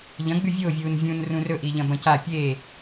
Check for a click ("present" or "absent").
absent